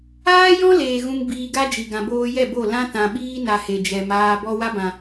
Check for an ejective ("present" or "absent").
absent